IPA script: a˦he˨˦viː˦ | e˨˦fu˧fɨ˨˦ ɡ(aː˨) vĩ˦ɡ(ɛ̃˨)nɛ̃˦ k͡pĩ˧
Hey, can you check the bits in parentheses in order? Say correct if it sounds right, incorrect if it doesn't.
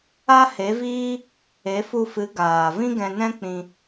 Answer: correct, incorrect: ɛ̃˧

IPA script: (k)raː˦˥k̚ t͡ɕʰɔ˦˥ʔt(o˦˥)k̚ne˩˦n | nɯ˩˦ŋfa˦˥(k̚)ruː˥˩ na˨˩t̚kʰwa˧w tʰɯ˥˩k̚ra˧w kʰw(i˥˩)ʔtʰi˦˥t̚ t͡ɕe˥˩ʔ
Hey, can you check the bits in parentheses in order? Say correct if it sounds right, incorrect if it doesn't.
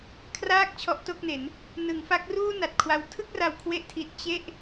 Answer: incorrect: kʰ, incorrect: o˥˩, correct, incorrect: e˥˩

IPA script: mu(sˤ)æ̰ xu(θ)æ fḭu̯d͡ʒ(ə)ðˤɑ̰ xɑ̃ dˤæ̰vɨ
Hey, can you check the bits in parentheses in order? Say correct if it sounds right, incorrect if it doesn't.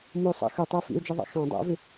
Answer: correct, incorrect: tˤ, incorrect: ɨ

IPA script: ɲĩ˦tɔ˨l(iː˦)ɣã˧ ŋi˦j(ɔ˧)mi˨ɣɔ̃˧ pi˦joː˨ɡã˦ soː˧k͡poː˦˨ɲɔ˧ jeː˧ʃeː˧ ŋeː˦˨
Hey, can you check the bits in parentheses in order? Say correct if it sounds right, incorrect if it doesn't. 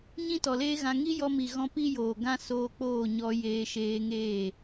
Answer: incorrect: eː˦, correct

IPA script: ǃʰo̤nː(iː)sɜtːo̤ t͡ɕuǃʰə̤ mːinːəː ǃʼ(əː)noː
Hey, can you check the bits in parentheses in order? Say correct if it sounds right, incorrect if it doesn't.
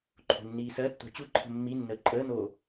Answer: correct, correct

